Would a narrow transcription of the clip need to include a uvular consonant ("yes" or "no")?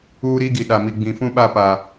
no